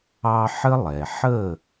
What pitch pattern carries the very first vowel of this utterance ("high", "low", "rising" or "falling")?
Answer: high